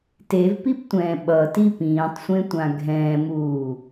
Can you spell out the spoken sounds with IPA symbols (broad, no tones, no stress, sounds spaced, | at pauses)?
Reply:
t e v p i p tʷ ɛ̃ː ɓ ʌ t i p ĩː tˤ sʷ ẽ tʷ ã ɡʱ ɛ̃ː m uː